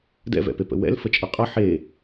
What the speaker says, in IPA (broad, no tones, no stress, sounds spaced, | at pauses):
d ɛ̰ v ɛ̰ p e p ə̰ w ɛ̰ l f ə t͡ʃʼ ʌ qʼ ʌ ħ e